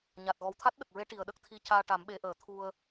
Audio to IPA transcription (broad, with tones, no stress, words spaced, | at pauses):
ɲa˨˩t̚ ɣɔ˨˩wt̪ʰa˦˥t̚ɗə˨˩k̚ɹe˧˥ ʈi˨˩ə̯ɗə˦˥k̚t̪ʰi˧ caː˧ʈa˨˩˦mɓe˨˩˦ ʔəː˨˩t̪ʰu˧ə̯